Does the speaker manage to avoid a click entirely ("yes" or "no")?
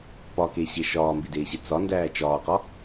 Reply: yes